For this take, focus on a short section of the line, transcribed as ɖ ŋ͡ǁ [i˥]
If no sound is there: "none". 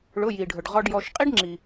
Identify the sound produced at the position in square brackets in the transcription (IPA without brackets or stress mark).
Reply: i˩